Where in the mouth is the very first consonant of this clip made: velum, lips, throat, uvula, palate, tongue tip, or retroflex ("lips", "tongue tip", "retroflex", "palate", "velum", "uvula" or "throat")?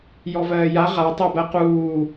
palate